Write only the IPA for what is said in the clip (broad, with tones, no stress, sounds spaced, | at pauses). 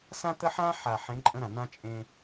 s ã˦ t̪ ə˦ ħ ã˦ ħ a˨ ħ ẽ˨˦ ǃʼ ə̃˦ ɾ ã˨ n̪ ã˦ t͡ʃʼ ẽ˦